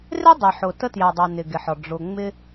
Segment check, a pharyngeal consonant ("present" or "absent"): present